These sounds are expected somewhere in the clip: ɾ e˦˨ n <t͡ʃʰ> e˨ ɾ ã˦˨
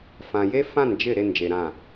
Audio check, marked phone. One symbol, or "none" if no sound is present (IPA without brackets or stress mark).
d͡ʒ